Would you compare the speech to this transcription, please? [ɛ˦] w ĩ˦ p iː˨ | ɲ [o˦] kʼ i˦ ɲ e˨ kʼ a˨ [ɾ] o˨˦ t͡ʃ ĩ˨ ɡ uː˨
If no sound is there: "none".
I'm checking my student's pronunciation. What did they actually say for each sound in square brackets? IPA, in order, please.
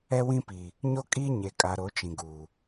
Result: ɛ˦, o˦, ɾ

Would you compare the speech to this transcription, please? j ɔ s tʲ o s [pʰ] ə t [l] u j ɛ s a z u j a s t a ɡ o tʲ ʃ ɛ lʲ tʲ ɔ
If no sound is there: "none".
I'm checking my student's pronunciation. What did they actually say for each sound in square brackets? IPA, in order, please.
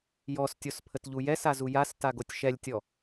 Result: pʰ, ʎ

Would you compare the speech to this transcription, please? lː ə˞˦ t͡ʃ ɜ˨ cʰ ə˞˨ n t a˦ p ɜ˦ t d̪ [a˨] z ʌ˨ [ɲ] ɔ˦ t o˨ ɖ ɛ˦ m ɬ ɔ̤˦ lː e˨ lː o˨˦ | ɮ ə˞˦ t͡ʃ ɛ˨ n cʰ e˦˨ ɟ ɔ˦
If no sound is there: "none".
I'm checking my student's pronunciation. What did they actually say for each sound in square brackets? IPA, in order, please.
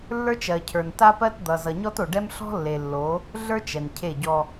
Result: ʌ˨, ɲ

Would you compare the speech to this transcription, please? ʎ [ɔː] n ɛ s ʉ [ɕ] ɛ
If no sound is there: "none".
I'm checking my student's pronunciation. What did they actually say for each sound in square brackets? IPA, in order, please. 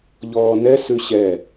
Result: ɔː, ɕ

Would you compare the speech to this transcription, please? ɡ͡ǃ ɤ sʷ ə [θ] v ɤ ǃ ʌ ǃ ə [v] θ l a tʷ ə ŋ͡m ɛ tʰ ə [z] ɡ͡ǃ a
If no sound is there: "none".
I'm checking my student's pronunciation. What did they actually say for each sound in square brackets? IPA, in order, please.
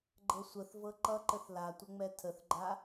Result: θ, none, θ

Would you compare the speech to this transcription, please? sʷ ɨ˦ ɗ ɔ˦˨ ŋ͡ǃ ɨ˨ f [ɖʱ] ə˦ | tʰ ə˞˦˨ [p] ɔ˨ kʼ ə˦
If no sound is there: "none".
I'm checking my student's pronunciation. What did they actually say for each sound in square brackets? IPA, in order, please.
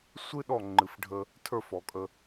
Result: ɖʱ, f

